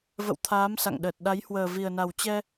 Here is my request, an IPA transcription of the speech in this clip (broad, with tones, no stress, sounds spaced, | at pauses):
v ə̰˧˨ w t̪ʰ aː˨˦ m s a̰˧˨ ŋ ɗ əː˨˩ t̚ ɗ a˨˦ j h w əː˨˩ v i˨˩ ə̯ n a˨˩ w t͡ɕ ɛ˧